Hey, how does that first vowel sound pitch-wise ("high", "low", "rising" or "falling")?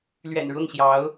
low